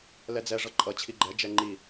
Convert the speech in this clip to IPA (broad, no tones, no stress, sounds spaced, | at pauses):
l ɛ d͡z ɛ ʐ ʌ ǃʼ ʌ t͡ɕʰ i ɡ͡ǃ ɛ d͡ʒ ɛ ŋ͡ǃ i